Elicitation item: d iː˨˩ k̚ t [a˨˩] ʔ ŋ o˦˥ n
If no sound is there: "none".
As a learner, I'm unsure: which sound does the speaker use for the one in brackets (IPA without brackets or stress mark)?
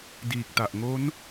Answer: a˨˩